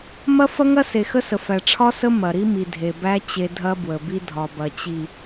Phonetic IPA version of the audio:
mɐ˦fɐ˦ŋɐ˦ se˨xə˦sə˨fæ˨ ʈ͡ʂʰɒ˦sə˦ mɐ˨ ɾi˦mi˨dʱe˨ bæ˦ t͡ɕe˦ dʱɐ˦bwə˨bi˦dʱɒ˨ bɐ˨t͡ɕi˨

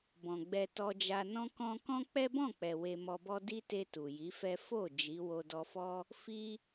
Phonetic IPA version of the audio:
bɔ̃˨ɡ͡bɛ˧tɔ˧d͡ʒa˧ nɔ̃˦kɔ̃˦ kɔ̃˦ k͡pɛ˦bɔ̃˦˨k͡pɛ˨ we˧mɔ˧bɔ˦ di˦ te˧ tu˨ji˨˦fɛ˦ fo˦˨ d͡ʒi˨˦ wo˧dɔ˧fɔ˦ | fi˧

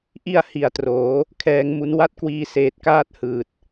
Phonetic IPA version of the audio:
ʔi˧a̯ hi˨˩a̯troː˩˦ | kʰɛː˧ŋmu˦˥n wa˥˩t̚kwiː˧seː˨˩t̚ kaː˥˩t̚hɯː˨˩t̚

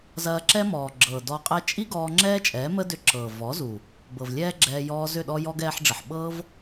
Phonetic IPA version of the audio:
zɐː˧ǁɛ˦mɔː˨ ɡ͡ǁɤː˨dɔ˧qʼɛ˦ t͡ʃʼi˦ ɡɔː˧ŋ͡ǁɛː˦t͡ʃʼɛː˨˦mə˦ dʏ˧ǁɤː˨ vɔ˨˦zu˨ | bɤ˨vlʲɛː˦ɡ͡ǁɛː˧ jɔː˧ zʏ˦˨ɗɔ˦jɔ˦ɡ ɛː˧ħɖ͡ʐə˨ħɓɤː˦v

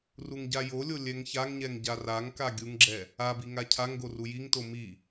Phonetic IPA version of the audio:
ruŋɟajolʲo lʲɛŋçaŋɲɛŋ ɟaraŋka ɡʲuŋɡ͡ǁɛ | abi ŋacʰaŋɡo rujiŋto mi

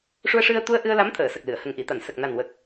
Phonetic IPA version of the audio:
ʂu˧ə̯ʂɨ˧ə̯t̪u˧ə̯ʔɨ˧ə̯ la˧˥mt̪ʰəː˨˩˨sə˨˩k̚ lɨ˨˩˨ə̯ hə˨˩ŋʔi˨˩˨t̪a˨˩˨n sə˨˩k̚ na˨˩nwə˨˩k̚

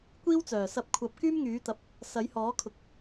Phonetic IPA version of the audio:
kʷiː˥wt͡sœː˨˩ sɐ˧p̚kʷʰɐ˨˥p̚ kyː˥mŋyː˨˥ t̪ɐ˨˥p̚ | sɐ˨˥jhɔː˨˥kʰʊ˨˥k̚

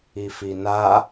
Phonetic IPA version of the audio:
ifina

